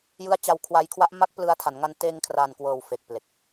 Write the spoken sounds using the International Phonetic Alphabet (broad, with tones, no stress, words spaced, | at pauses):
jɯ˦˥a̯t͡ɕa˧wkʰwa˧jkʰwa˦˥ʔ ma˦˥k̚plɯ˧a̯tʰa˩˦n ŋa˧nteː˧ŋkʰraː˨˩nkwɤː˨˩w fe˨˩k̚ple˨˩k̚